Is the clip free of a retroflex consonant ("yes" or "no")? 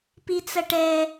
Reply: no